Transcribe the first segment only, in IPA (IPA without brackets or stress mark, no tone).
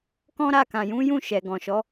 k